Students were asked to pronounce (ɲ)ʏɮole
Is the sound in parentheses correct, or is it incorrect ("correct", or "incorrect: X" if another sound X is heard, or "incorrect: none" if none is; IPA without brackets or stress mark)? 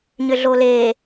correct